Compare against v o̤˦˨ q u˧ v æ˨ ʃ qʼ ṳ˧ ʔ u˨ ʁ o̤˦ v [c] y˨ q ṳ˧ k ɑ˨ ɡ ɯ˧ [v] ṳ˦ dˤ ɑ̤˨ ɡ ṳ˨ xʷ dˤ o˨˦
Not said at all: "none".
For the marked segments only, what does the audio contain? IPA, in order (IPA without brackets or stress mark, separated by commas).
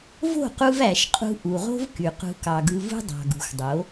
k, v